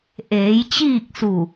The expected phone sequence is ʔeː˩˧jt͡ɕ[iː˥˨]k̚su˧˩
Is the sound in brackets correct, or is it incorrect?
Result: correct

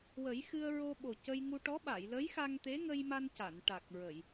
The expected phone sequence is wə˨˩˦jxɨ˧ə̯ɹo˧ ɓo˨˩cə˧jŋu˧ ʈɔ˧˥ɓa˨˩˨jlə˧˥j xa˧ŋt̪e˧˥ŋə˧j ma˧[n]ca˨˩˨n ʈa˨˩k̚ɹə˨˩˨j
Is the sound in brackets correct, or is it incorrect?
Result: correct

